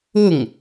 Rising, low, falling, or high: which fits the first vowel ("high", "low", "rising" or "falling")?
falling